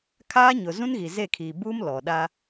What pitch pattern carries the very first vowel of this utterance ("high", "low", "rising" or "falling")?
high